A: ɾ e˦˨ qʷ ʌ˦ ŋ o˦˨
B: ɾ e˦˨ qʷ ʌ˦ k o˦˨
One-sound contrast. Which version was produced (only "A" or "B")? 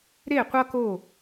B